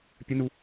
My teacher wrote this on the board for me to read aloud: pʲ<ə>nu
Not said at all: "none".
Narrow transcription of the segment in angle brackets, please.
ə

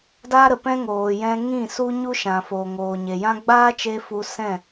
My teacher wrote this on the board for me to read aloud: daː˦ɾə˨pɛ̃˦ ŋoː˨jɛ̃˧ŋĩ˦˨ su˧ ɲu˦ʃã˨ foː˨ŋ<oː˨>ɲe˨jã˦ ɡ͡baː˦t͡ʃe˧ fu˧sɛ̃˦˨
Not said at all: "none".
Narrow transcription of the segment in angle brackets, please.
oː˨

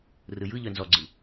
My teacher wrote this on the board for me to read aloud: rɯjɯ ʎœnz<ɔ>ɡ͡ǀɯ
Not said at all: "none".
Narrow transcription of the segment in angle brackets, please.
ɔ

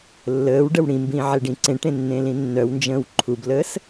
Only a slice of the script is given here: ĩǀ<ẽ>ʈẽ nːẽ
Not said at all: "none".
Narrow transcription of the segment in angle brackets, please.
ẽ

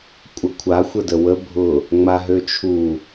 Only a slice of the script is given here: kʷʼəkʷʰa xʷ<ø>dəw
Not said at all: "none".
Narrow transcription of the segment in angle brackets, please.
ə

